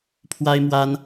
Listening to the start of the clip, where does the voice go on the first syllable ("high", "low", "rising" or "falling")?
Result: high